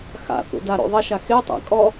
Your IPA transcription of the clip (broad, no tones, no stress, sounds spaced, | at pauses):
x a̰ θ ṵ d a ɾ o̰ ðˤ ɐ ʃ a x e tˤ a̰ kʼ ɔ